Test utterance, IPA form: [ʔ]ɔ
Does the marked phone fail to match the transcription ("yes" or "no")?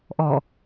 no